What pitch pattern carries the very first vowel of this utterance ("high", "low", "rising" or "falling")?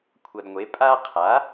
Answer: low